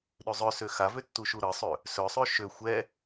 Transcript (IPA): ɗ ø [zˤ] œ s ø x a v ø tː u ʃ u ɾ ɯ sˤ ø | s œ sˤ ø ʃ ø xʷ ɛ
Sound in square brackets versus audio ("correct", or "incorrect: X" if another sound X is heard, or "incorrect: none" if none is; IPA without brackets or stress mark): correct